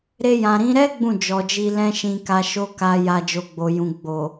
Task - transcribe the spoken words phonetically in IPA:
ɾ e˧ j ã˨ ɾ ĩ˨˦ ɾ ɛ˦ ɡ͡b ũ˦˨ d͡ʒ ɔ˨ d͡ʒ i˧ l ɛ̃˦ ʃ ĩ˧ k a˧ ʃ o˦ k a˧ j a˧ d͡ʒ o˨ ɡ͡b o˨ j ũ˨ ɡ͡b o˨

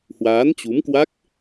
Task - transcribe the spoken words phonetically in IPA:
h w aː˨˦ n t͡ɕ u˨˦ m k w a˦˥ k̚

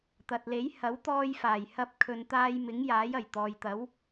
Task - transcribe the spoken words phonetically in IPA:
t̪ ɐ˨ t̚ l e˨˥ j h ɐ˨˥ w t̪ ɔː˧ j f aː˨˩ j h ɐ˧ p̚ kʰ ɵ˨ n t̪ aː˧ j m ɪ˨˥ ŋ j aː˨˥ j ɐ˨˩ j t̪ ɔː˨ j t̪ ɐ˨˥ w

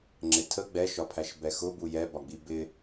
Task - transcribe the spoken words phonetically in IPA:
ŋ͡ǁ ɪ tʰ ə ɡ͡b ɛ ʃ ɒ pʰ æ ʃ b ɛ x ʊ b u j ɛ b ɒ ɡ͡b i b ɪ

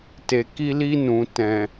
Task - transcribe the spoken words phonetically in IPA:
t e˨ k i˧ l i˧ n ũ˨ t ɛ̃˨

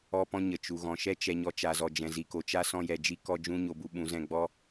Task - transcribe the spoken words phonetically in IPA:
ɔ˧ p ɔ̃˧ ɲ ə˨ t͡ʃ u˨ ɣ ɔ̃˨ ʃ ɛ˦ t͡ʃ ɛ˨ ɲ ɔ˧ t͡ʃ a˨ z ɔ˨ d͡ʒ ɛ̃˨ z i˨ k o˨ t͡ʃ a˦ s ɔ̃˧ j ɛ˨ d͡ʒ i˦ k ɔ˧ d͡ʒ ũ˦ ɲ o˧ b u˧ ɓ ũ˨˦ z ɛ̃˧ ɡ͡b ɔ˦

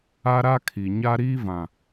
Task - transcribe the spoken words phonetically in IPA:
a˦ ɾ a˦ kʰ i˨ ɲ a˦ ɾ iː˦ v ã˨

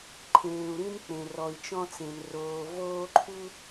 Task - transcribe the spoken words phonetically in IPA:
ǃʰ ẽː˨ u̯ ɾ ĩ˦ n k͡p ẽ˨ r ɔ˨ i̯ t͡ʃ ɔ̃˦ t͡s ẽ˨ n r oː˨ v oː˦ ǃʰ u˦

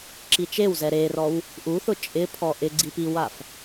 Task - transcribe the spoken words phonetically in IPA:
ǁ i t͡ʃ e w z ɛ ɾ e r ɔ w | ʔ u θ ʊ t͡ʃʼ ɪ pʰ ɔ ʔ ɪ ɡ͡ǀ i p i w a f

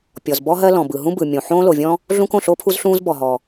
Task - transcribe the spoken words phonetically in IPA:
pʲ ɔ˩ z b ɔ˥ ɦ ɜ˥ l ɔ̃˩ b ɯ˩ ɦ ũ˥ b ɯ˩ mʲ õ˩ ħ õː˥ l o˩ vʲ ɔ̃˥ | ɮ ũ˥ k õ˩ ɬ o˥ pʰ u˥ z ɬ ũː˥ z b ɔ˩ ɦ ɔ˩

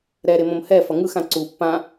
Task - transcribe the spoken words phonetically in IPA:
ɾ ɛ ɾ e m õ m h ɛ f ʌ ŋ ɯ x ã ǀ u pː ã

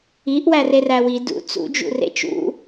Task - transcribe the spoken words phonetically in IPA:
i ʔ w æ r e r æ w i d ṵ t͡s ṵ d͡ʒ ṵ r ḛ t͡ʃ ṵ

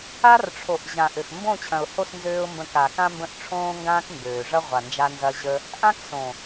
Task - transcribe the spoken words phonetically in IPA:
a˦ r ʈ͡ʂʰ o˨ ʔ ʑ ã˨ ʔ ø˨ x m b õ˦˨ t͡ɕʰ ɐ̃˨ ʊ̯ h o˦˨ s n z øː˧ ʊ̯ m b ə̃˧ k a˨ k ã˦ m b ə̃˦˨ ʔ ʈ͡ʂʰ õː˦ ŋ ɡ ãː˦ k m b øː˨ ʐ ɐ˦ ʁʷ a˨ n d͡ʒ a˧ n z ɐ˧ ʑ ə˧ | ʔ ã˦ k s õ˨

